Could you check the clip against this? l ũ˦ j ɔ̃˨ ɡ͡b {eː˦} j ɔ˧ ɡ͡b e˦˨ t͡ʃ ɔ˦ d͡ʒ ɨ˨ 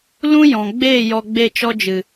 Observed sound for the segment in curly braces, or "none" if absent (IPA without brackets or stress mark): eː˦˨